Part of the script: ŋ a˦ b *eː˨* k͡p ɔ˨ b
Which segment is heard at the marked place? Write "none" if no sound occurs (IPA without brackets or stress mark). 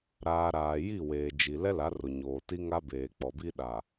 eː˨